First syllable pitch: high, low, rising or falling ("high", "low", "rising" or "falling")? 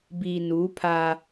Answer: low